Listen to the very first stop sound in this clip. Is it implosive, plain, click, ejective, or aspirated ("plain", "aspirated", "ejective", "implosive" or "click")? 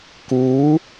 plain